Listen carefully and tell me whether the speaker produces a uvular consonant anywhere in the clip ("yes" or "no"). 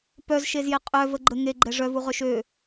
yes